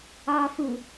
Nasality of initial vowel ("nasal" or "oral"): oral